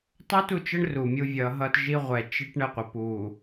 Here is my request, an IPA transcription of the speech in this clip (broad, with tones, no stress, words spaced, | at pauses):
tˤo˦tu˨t͡ʃə˦ɳ ru˨mʲu˦vʲʌ˨˦ɦʌ˦t ʒi˦ʁʷɛ˨t͡ʃi˦ʈ ɳə˦˨qʷə˨ pu˨